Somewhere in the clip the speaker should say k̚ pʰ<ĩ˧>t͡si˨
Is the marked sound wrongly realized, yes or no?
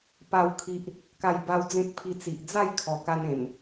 yes